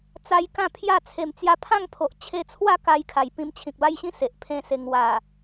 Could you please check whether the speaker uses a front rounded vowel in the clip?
no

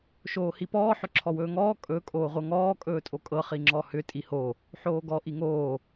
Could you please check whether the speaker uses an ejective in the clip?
yes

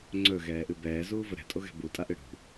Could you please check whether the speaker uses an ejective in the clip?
yes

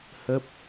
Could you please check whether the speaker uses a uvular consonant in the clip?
no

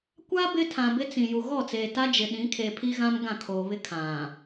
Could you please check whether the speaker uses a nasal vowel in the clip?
yes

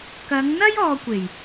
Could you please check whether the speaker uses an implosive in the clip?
no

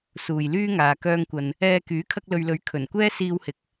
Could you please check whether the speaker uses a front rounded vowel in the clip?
yes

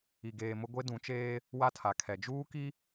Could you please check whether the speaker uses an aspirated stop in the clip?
yes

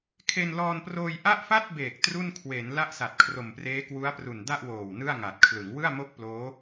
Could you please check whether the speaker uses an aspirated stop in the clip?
yes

